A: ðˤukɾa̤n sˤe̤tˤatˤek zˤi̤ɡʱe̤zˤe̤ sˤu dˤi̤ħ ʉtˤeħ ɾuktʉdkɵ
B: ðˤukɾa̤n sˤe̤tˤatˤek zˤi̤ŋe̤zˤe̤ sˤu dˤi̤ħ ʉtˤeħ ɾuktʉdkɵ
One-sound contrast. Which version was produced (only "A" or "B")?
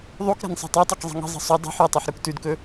B